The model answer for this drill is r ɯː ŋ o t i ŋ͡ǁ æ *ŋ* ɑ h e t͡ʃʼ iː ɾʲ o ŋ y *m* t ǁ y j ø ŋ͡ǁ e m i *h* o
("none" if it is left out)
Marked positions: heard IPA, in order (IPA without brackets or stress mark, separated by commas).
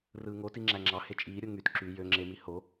ŋ͡ǁ, none, h